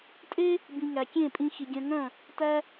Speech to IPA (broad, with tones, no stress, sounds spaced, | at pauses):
tʼ e˥ | b ĩ˩ ŋ æ˩ kʲ ẽ˥˩ pʼ ĩ˧ x i˩ ɡʲ œ̃˧ ŋ œ̃˥˩ | t æ˧